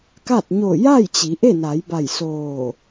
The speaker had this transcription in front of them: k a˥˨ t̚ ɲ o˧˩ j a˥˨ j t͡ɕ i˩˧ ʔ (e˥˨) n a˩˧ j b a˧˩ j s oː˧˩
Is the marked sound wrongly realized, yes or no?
no